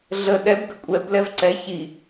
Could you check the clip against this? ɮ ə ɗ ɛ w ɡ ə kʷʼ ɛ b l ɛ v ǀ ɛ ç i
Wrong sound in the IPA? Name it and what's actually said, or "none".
w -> b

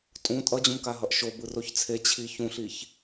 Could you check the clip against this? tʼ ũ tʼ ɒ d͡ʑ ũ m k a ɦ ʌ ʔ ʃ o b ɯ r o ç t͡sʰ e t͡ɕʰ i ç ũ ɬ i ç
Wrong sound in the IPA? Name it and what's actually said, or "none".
ɒ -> ʌ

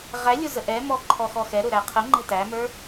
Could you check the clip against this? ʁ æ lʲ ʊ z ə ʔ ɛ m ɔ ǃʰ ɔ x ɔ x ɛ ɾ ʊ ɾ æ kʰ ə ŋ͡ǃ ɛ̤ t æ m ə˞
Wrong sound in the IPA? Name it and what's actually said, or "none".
kʰ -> qʰ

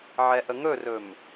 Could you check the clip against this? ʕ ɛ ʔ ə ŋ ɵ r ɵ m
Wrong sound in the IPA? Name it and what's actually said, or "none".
none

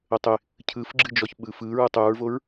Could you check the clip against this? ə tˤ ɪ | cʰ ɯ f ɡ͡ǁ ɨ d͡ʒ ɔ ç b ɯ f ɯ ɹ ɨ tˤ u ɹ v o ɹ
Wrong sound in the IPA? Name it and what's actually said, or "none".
b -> ɓ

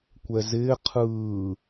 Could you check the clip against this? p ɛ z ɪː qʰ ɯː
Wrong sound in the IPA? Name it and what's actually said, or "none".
p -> kʷ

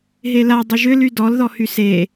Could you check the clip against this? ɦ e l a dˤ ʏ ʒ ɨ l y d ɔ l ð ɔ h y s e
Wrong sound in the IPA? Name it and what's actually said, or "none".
ɨ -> ʏ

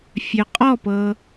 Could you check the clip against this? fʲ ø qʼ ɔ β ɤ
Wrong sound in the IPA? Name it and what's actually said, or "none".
β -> p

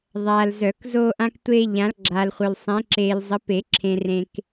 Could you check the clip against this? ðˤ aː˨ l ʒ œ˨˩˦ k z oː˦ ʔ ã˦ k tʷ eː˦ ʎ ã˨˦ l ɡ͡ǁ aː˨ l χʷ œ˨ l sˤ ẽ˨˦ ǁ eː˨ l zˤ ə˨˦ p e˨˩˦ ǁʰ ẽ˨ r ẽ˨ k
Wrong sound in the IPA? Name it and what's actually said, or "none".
ʒ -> z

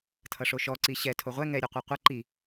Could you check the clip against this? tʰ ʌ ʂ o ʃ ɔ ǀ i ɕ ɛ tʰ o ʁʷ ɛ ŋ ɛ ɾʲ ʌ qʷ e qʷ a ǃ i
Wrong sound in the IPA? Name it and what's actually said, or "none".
a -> ʌ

